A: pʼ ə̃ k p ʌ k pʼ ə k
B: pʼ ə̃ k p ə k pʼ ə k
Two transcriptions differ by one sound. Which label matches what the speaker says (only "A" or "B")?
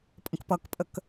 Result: A